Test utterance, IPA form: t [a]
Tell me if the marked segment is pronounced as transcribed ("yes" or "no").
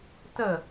no